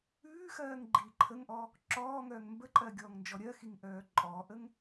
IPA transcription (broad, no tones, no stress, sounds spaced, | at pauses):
ʉː x ɜː ŋ ɡ͡ǃ iː ǃʰ ə ŋ ʔ ɔ | ǁ ɔː ŋ œː ŋ m b ə ǃʼ ɜ ɡʲ ɔː ŋ n d͡ʒ ɔ ɾʲ ɜ x i ŋ ʔ œː ǃʼ ɔː ʔ ə ŋ